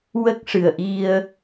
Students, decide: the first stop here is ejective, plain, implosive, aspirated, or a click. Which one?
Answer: plain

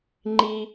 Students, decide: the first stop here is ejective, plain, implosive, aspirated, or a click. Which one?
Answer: click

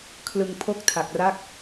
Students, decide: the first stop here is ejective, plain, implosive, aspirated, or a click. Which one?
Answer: aspirated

